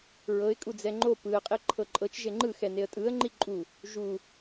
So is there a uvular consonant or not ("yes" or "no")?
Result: yes